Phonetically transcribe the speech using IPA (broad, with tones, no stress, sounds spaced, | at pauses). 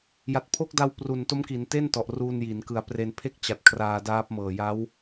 j a˨˩ t̚ pʰ o˦˥ k̚ d a˧ w p r u˨˩ n t o˦˥ m k i˩˦ n t e˥˩ n t ɔ˨˩ ʔ r u˧ n j i˩˦ n k ɯ˨˩ a̯ p r e˧ n pʰ e˥˩ k̚ t͡ɕ a˨˩ t̚ kʰ r aː˧ d aː˦˥ p̚ m ɤː˨˩ j a˦˥ w